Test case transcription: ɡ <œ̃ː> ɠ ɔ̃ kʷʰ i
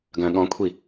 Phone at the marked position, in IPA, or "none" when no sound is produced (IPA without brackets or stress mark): œ̃